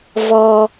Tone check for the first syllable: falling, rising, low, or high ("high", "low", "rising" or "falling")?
high